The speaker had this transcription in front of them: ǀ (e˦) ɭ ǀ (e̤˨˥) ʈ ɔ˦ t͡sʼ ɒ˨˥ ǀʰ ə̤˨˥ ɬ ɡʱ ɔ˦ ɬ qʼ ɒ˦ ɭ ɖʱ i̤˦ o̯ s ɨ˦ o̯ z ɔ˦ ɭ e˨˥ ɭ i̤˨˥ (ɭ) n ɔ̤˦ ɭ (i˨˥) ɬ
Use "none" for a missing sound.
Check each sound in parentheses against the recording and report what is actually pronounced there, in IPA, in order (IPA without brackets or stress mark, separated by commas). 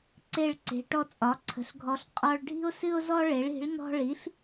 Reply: e˦, e̤˨˥, ɭ, i˨˥